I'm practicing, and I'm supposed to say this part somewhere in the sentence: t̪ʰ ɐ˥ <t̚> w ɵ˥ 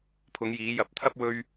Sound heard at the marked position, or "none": p̚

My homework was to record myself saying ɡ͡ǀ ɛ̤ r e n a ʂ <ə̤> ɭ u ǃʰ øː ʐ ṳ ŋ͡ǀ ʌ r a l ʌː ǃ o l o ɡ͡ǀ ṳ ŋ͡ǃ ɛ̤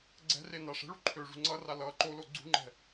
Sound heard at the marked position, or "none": ɛ̤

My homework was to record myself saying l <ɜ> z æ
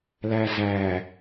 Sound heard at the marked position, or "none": æ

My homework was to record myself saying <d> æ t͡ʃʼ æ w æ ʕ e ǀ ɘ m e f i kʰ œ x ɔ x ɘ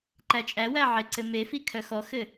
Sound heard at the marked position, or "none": ǃ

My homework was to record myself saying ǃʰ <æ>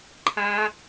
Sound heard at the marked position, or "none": a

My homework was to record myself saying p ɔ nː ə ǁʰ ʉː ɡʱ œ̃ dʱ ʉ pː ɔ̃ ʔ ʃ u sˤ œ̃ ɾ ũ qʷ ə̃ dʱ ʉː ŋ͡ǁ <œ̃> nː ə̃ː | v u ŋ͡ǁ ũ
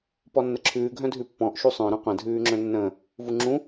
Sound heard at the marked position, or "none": œ̃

